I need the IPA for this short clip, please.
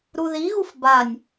ɾ u ð i ɣ u f b a nʲ

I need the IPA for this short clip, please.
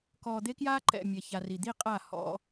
k ɔː˨ d̪ e˦ k j aː˦ ǃ ɛ̰˨ mʲ ɛ˨ ç a˨ r i˨ d̪ i˦˨ qʼ a˦˨ h ɔ̰˦

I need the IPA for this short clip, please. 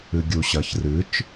ɨ ɡʲ u ɕ ɐ ç r ɨ t͡ʃ

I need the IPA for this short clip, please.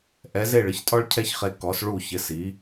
ʔ ɛ˩˥ z e˥˩ ɭ ɪ˧ ç tʼ ɔ˥ ɭ cʰ ɛ˥ ç χ e˧ k ɔ˩˥ s ɭ u˥˩ ç ɪ˩˥ s i˩˥

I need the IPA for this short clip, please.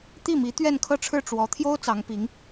t̪ i˥˩ m i˧˥ t̪ ɥ ɛ˥˧ n kʰ ɤ˥˧ ʈ͡ʂʰ ɻ̩˥˩ ʈ͡ʂ w ɔ˧˥ t̪ʰ j o˥ ʊ̯ t͡s ɑ˧˥ ŋ p i˧˥ ŋ

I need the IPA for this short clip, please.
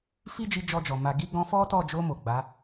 f i˦ d͡ʒ i˧ d͡ʒ ɔ˧ d͡ʒ ɔ˨ m a˨ ɡ i˧ ɡ ɔ̃˧ f ɔ˦ t ɔ˦˨ d͡ʒ o˧ m o˨ ɡ͡b a˨˦

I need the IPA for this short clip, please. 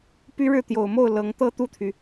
p y˥ ɻ ɻ̩˥˩ t̪ j o˨˩ ʊ̯ m o˥˩ ʊ̯ l ɤ˧˥ ŋ t̪ ɤ˥˧ t̪ u˥˩ t̪ʰ y˩

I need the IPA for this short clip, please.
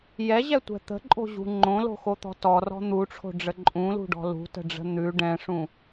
j ɛ ʑ ɛ tʷ ɛ̤ t̪ ə̤ ǃʼ o̤ ʑ ṳ ŋ͡ǃ õ l o̤ x o t̪ ɔ̤ t ɔ r ɔ̤ n̪ u ʈ͡ʂʰ o̤ ɖ͡ʐ ə ǃʼ ũ l ṳ ɖ ɔ̤ l ṳ t ə̤ ɖ͡ʐ ə̤ n̪ ʉ ɖ ɛ̃ ʂ ũ

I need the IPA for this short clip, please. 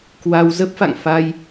k w a˧ w z ə˦˥ p̚ f a̰˧˨ ŋ f a˧ j

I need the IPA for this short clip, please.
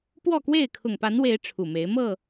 p w ɔ˥˨ k w e˥˨ ɪ̯ kʰ ʊ˨˩ ŋ p a˨˦ n w e˨˦ ɪ̯ ʈ͡ʂʰ u˨˩ m e˨˦ ɪ̯ m ɤ˥˨

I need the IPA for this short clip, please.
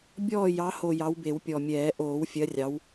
bʲ ɔː˦˨ j ɑ˨˦ h o˨˩ j ɑ˨˦ w b e˨˩˦ w pʲ ɔ˨˩ mʲ ɛː˨˩˦ ʔ oː˨˩˦ w fʲ ɜ˨˦ rʲ ɑ˨˦ w

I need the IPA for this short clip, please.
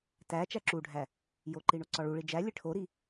t æ t͡ʃ æ ǁ u ɖʱ æ | j o ǃ i ɳ o ǀ ɒ ɭ u ɭ i d͡ʒ æ lʲ e ʈʰ o ɾ i

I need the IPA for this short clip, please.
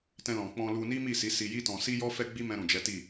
t ɛ̃˧ l ɔ̃˨ k͡p ɔ̃˧ l u˧ n i˦ m i˦˨ s i˨˦ s i˧ j i˦ t ɔ̃˧ s i˦ j ɔ˦ f ɛ˦ ɡ͡b i˦ m ɛ̃˧ ɾ ũ˨ d͡ʒ ɛ˨˦ t i˦˨

